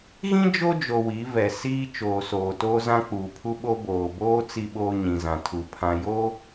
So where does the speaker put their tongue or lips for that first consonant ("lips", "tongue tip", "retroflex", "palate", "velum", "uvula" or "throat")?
velum